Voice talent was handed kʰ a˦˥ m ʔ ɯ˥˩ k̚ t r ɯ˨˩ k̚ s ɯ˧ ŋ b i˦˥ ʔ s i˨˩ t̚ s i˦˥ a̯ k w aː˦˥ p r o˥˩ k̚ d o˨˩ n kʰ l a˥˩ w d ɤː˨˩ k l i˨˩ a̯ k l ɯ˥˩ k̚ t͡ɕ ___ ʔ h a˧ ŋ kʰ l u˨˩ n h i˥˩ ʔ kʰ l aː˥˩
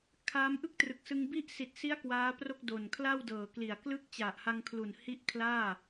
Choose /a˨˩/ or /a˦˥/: a˨˩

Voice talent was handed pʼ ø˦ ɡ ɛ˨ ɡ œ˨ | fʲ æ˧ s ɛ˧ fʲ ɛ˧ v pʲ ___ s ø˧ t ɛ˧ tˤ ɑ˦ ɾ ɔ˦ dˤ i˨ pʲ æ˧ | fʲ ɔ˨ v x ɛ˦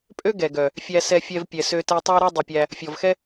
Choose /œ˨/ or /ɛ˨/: ɛ˨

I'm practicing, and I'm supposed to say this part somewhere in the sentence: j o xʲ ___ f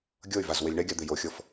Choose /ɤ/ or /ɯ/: ɤ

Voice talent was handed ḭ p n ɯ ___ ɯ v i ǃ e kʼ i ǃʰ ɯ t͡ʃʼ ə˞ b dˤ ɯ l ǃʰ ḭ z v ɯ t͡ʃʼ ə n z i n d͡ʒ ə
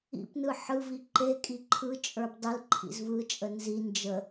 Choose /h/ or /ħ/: ħ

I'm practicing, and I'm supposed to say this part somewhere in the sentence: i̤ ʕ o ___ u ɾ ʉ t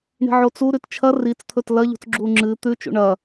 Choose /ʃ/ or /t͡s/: t͡s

